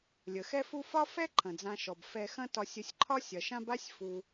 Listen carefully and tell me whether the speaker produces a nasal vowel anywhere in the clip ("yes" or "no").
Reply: yes